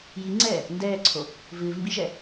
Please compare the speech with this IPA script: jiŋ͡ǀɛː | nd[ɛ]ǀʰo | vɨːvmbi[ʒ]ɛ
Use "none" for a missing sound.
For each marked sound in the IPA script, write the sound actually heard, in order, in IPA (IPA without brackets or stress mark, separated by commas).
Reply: ɛː, ʒ